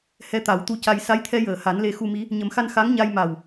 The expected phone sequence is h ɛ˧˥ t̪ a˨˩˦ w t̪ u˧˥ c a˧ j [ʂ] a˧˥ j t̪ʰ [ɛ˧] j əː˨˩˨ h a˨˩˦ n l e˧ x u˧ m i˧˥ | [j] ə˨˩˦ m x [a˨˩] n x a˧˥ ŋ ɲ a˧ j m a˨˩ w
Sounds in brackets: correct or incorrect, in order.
incorrect, correct, incorrect, incorrect

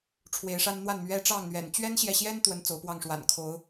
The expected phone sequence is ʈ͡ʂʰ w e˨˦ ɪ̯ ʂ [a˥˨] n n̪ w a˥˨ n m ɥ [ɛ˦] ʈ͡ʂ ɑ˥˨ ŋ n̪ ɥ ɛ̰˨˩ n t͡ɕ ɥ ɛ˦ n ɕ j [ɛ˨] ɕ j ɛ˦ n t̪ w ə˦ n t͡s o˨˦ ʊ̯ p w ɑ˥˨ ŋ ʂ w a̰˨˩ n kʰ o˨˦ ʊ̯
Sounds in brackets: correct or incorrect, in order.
incorrect, correct, correct

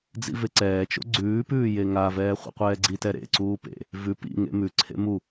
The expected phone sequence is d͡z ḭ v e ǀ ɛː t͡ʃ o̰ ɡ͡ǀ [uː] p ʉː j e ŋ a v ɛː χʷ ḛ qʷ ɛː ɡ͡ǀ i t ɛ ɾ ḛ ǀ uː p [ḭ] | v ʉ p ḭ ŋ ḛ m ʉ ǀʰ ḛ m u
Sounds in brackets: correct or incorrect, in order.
incorrect, incorrect

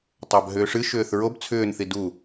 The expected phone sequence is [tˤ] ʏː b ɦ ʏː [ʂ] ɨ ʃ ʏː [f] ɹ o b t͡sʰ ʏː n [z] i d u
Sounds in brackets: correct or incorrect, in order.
correct, correct, incorrect, incorrect

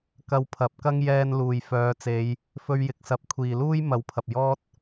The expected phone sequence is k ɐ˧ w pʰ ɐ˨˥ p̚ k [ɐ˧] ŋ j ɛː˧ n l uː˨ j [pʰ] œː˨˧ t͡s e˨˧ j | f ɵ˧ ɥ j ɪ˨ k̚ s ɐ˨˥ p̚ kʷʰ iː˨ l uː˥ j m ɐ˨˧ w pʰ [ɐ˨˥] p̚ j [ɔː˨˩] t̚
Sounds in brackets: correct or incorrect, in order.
incorrect, incorrect, incorrect, incorrect

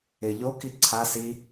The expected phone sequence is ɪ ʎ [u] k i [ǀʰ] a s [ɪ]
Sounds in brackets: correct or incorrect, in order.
incorrect, correct, incorrect

